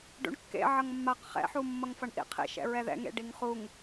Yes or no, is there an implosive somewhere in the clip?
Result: no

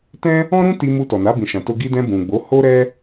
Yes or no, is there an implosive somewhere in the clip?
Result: no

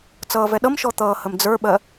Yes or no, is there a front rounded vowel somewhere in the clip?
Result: no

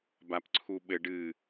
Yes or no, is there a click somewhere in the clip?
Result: yes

